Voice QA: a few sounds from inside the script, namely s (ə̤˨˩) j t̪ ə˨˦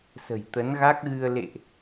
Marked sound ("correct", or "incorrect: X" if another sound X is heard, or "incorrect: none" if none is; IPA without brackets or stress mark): correct